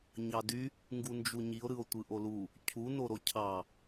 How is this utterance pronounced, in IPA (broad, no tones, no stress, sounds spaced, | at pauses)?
ɲ ɑ d y | ŋ ɡ u n d͡ʒ u ɲ i o̯ ɾ ɯ o̯ tʷ ɯ ʔ o l u | cʰ u n o ɾ o cʰ ɑ